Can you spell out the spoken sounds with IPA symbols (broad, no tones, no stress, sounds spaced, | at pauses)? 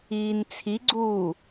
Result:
iː n t͡sʰ i ɡ͡ǀ uː